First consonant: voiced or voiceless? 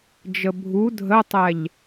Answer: voiced